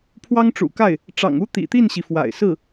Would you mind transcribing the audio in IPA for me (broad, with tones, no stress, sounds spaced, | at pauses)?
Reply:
pʰ w ɑ˥ ŋ ʈ͡ʂ ṵ˨˩ k a˥˩ ɪ̯ | ʈ͡ʂ ɑ̰˨˩ ŋ u˥ t̪ ḭ˨˩ t̪ i˥˩ n ɕ i˩ f w a̰˨˩ ɪ̯ s ɹ̩˥˩